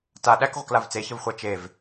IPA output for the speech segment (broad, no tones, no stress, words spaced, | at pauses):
ta ɗæk ʁʷəklavt͡seçəv χʷat͡ʃev